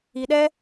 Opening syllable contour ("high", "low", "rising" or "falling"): low